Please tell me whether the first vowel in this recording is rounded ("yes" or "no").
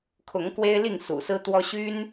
yes